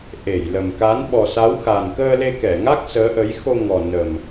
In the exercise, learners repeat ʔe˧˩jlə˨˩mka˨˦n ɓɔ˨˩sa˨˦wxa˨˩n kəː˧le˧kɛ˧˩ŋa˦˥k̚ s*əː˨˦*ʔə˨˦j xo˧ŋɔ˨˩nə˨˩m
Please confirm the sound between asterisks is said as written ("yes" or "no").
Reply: yes